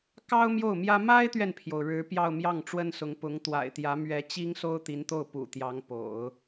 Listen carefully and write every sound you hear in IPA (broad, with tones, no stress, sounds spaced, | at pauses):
k ɑ˥ ʊ̯ m j o˥˩ ʊ̯ m j ä˥ m a˥ ɪ̯ t̪ ɥ ɛ˨ n pʰ j o˩ ʊ̯ ɻ ɻ̩˧˥ p j ɑ˥˧ ʊ̯ m j ɑ˥˩ ŋ ʈ͡ʂ w ə˥ n s ʊ˧˥ ŋ p ʊ˧˥ ŋ t̪ w a̰˨˩ ɪ̯ t̪ j ä˧˥ m ɥ ɛ˧˥ t͡ɕ i˥ ŋ s o˥ ʊ̯ t̪ i˧˥ n t̪ o˥˩ ʊ̯ p ṵ˨˩ t̪ j ɑ˧˥ ŋ p o̰˨˩˦ ʊ̯